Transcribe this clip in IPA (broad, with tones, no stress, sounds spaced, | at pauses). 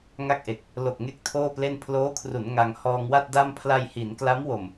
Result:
ŋ a˥˩ k̚ ʔ e˨˩ k̚ | l o˨˩ k̚ ŋ e˥˩ k̚ tʰ oː˥˩ p l e˥˩ n pʰ l oː˦˥ kʰ r u˩˦ n ŋ a˧ ŋ h ɔː˧ ŋ w a˥˩ t̚ d a˥˩ m pʰ l a˧ j h i˩˦ n k l a˦˥ m w o˨˩ m